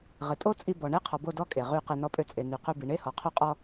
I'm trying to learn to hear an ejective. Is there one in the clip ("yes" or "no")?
yes